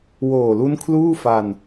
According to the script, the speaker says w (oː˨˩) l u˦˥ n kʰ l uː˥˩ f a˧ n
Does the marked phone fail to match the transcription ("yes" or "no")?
no